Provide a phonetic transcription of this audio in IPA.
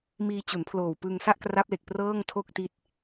miː˧t͡ɕu˩˦npʰloː˨˩w pɯ˧ŋsa˥˩ʔkra˦˥p̚le˨˩k̚ prɤː˥˩ŋtʰo˥˩k̚ti˦˥t̚

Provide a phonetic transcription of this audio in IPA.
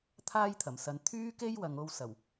t̪ʰaː˥jt̪ʰɐ˨˩m sɐ˧n t̪ʰyː˥ke˥jwɐ˨ŋ o˥wsɐ˨˩w

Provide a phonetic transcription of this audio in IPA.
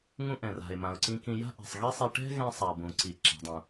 ŋũ˧ ʔɛ̃˩ra̤˩ɪ̯ mã˩ʊ̯ǀĩ˧kĩ˧ ja̤˥ʔɛ̤˩sˤɣi˥sˤi˧ ʈɛ̤˥ɣɛ̃˧sˤa˩ bũ˩ǀi˩˧ ǁa̤˩˧dˤũ˩

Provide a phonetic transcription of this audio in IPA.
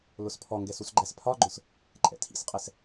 lʊspʰɔŋɡɛs usɡ͡ǃæspʰɒɡ͡ǃʊs | ǃʼɛ̰tʰḭsqʼɛs

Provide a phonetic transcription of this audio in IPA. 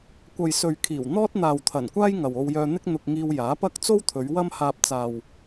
kʷɐ˨jsɵ˨ɥkʰiː˨˩w n̪ɔː˥t̚n̪aː˨w t̪ʰɐ˨˩nkʷaː˥j ŋɐ˨wo˧wjœː˧n̪ɪ˥k̚ n̪ʊ˧k̚ŋiː˧wjaː˨˥pɐ˥k̚ t͡so˥wt̪ʰɵ˨˧ɥ wɐ˥mhaː˧p̚ t͡saː˨w

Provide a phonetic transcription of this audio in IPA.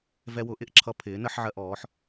vɛ˧wʊ˩˥ʔɪ˩˥ʔ ǁʰʌ˧pʰɪː˩˥ nə˩˥ħʕɜ˧ʔɔː˩˥ħ

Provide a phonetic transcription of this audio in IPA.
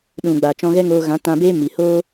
ɗũ˨ɡ͡ba˨ t͡ʃɔ̃˧ɣɛ˦ŋoː˧ɣã˨˦ tã˧beː˦mi˨hoː˦

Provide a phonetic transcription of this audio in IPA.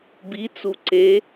bit͡su ǀe

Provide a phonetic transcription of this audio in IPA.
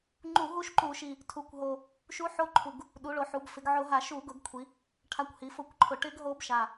ŋ͡ǃu˧˩˧ɦu˦˥ʃǃu˧˩˧ʃi˨˩ | tʰu˩˧kʷɦo˨˩ | ʃu˦˥ħo˦˥ǃʰu˨˩ɡ | ɗu˩˧ɭo˩˧ħu˩˧b fɪ˩˧ɡʕʊ˧˩˧ɦa˧˩˧ ʃu˧˩˧ɡʊ˧˩˧ɡkʷʰi˩˧ | ʈʰa˨˩kʷhi˩˧ fʊ˧˩˧kʷǃʰʊ˨˩ʈɪ˦˥ɡ ɦo˦˥bʃa˨˩

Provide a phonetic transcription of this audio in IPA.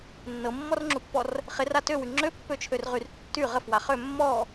nːɤmːɔrŋ͡ǁupːɔr | χɪra tøwy ŋ͡ǁøpːøt͡ʃʰørʁyr tːy ʁəfwa χø mːɔ

